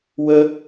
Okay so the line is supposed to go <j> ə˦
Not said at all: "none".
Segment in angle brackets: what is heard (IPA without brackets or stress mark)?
w